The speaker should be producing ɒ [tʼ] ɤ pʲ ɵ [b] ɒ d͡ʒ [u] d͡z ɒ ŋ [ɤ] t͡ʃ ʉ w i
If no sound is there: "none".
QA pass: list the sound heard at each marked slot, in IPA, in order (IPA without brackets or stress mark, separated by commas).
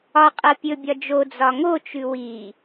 qʼ, bʲ, o, o